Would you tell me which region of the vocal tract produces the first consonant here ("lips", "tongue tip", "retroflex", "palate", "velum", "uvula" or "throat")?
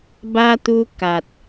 lips